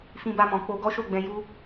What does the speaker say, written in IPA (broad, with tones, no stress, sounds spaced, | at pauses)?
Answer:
f ĩ˧ b a˧ m ɔ̃˨ k͡p o˧ ɡ ɔ˦ ʃ o˦˨ ɡ͡b ɛ̃˧ j u˦